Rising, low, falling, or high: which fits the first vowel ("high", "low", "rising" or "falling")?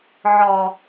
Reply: low